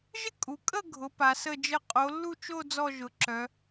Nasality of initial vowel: oral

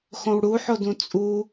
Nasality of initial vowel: nasal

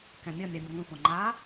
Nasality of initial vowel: nasal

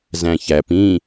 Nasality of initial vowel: nasal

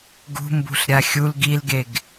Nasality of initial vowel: oral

